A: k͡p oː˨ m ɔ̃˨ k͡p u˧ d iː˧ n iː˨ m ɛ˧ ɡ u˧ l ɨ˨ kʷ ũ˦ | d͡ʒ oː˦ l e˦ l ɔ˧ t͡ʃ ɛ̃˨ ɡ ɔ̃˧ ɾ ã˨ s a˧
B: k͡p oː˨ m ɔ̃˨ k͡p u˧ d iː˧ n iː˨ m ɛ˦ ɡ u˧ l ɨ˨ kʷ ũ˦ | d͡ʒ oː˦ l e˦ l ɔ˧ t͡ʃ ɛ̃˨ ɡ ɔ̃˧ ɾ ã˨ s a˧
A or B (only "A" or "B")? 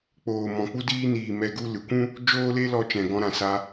A